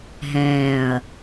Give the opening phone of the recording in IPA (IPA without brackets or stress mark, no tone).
ɦ